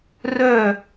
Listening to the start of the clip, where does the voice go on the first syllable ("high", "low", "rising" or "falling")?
falling